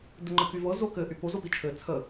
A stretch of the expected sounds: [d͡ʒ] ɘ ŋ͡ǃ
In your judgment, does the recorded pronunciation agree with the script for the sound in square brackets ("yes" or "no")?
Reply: no